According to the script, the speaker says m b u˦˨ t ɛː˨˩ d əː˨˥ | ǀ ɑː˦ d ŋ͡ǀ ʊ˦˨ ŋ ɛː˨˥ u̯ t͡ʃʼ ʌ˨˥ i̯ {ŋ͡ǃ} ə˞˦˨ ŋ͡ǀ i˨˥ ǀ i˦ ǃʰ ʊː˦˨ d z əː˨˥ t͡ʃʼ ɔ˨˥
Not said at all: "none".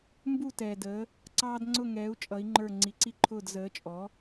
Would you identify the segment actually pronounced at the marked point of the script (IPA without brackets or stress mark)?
ŋ͡ǃ